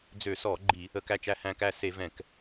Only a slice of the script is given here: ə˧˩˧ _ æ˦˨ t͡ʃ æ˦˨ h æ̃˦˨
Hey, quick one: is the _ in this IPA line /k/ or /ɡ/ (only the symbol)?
k